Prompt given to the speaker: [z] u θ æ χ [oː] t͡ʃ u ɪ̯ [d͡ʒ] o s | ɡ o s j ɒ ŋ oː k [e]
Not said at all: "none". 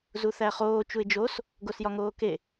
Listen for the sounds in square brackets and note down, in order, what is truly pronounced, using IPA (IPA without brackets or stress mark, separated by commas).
z, oː, d͡ʒ, e